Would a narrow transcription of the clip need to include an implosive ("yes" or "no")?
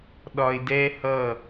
yes